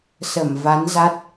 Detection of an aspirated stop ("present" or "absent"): absent